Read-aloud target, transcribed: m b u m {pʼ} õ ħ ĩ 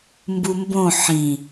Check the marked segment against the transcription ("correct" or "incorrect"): incorrect